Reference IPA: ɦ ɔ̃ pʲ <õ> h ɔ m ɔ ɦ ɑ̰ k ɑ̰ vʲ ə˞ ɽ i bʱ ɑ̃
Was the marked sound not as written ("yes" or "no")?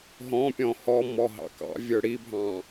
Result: yes